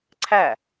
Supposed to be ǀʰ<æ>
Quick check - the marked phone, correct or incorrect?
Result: correct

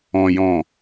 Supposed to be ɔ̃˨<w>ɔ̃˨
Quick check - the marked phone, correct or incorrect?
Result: incorrect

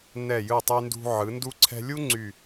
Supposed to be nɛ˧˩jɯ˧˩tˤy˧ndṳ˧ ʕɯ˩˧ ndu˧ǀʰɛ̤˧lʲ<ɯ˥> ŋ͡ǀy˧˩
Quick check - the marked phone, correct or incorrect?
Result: incorrect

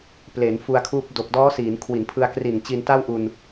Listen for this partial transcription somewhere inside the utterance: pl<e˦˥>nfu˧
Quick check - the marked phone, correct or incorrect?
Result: incorrect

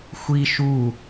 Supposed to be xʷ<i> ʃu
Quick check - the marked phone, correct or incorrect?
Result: correct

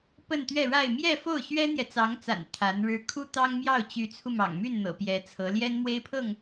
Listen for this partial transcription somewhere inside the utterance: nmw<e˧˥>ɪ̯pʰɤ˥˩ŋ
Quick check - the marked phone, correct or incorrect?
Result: incorrect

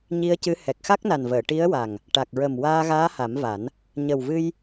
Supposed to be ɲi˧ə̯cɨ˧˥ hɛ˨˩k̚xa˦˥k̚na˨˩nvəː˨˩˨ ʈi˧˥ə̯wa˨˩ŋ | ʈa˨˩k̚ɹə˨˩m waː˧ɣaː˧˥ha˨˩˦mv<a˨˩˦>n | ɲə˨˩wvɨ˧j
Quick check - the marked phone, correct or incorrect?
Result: correct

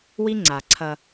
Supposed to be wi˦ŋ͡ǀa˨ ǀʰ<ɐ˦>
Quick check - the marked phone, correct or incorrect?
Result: correct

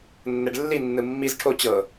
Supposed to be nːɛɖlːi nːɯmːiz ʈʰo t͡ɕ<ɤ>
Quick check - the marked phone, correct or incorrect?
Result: correct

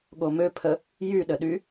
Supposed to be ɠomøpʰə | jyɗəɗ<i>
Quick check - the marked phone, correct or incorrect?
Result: incorrect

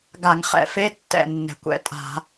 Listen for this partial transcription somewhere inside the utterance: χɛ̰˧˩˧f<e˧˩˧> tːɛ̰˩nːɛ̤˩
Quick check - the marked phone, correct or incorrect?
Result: incorrect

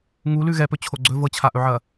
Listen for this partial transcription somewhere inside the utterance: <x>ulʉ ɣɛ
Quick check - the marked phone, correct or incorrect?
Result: incorrect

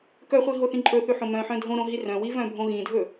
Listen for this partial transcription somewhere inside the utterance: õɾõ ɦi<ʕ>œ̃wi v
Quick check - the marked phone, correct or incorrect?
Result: incorrect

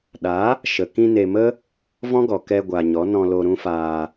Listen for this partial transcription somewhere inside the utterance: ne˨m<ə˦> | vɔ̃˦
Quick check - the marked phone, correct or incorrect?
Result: correct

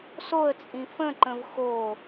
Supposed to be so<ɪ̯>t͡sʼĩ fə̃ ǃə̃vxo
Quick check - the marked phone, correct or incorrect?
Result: incorrect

